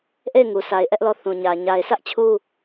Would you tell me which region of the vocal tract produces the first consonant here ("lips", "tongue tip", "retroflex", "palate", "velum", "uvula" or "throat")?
throat